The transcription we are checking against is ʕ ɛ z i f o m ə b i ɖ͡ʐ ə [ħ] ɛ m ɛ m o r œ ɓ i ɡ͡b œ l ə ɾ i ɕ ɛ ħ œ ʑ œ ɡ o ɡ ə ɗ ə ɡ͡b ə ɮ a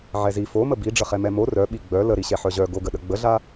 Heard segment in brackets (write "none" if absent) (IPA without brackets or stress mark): χ